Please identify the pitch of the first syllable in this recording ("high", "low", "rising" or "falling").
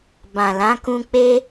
low